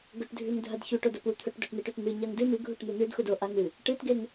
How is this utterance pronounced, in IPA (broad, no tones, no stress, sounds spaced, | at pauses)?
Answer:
ɡ ɵ ʈ dʱ ʉ ŋ dʱ ɐ d ç u ʈ o d ɐ p u t̪ʰ ɵ ʈ d o ʈ n̪ i ʈ ʉ t n̪ ɨ ɲ ɐ ŋ d ɨ m ɨ ɡʱ u ʈ n̪ u n̪ ʉ d x u d o ʔ a ŋ ɨ | ʈ ɨ t ɡ e ŋ